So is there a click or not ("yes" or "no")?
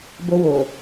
no